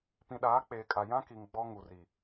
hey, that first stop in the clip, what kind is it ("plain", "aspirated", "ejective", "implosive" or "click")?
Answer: plain